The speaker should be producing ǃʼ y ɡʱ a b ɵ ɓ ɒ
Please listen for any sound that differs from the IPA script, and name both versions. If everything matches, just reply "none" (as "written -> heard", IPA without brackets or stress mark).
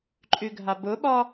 ɵ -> ʊ